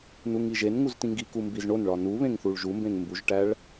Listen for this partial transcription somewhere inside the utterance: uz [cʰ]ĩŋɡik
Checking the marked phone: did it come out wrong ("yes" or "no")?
yes